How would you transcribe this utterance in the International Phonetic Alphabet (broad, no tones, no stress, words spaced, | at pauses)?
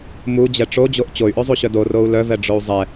mud͡ʑɛ ʈ͡ʂod͡ʑoʔ t͡ɕoy̯ʔøzˤuɕœ dorou̯ lœvɛɖ͡ʐou̯ zˤɛ